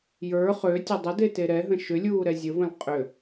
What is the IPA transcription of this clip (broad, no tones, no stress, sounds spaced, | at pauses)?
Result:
j ə˞ χ ø tʲ ə dˤ ə d e t e ɾ ɛ ɦ ə̃ ʃ ʏ lʲ uː ɾ ɛ zʲ ə v ə̃ l qʼ ʏ